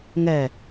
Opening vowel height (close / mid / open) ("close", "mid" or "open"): mid